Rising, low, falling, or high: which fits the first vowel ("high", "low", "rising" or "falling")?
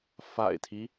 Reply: low